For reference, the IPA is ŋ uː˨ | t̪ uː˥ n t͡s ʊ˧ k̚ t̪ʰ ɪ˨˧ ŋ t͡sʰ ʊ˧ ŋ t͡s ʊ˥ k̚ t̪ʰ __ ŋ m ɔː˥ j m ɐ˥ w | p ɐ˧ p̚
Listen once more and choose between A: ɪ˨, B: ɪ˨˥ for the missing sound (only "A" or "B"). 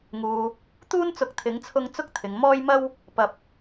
A